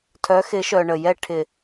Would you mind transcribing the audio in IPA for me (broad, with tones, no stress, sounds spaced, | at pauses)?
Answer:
tʰ œ˨˦ x ɪ˨˦ ʃ œ˨ ɳ ə˨ j ɛ˦˨ ʈʰ ɪ˨